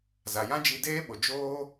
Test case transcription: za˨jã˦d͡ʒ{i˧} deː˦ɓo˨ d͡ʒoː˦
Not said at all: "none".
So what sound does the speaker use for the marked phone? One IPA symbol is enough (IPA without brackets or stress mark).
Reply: i˧